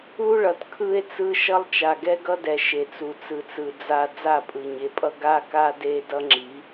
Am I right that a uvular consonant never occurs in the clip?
yes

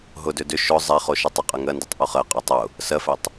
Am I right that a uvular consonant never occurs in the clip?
no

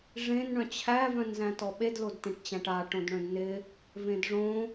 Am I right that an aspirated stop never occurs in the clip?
no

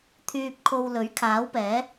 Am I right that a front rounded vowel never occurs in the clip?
no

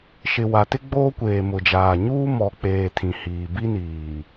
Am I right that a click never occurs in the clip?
yes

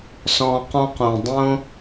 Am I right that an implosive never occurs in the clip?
yes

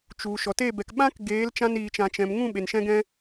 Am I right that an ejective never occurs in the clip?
yes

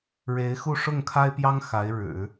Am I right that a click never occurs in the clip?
yes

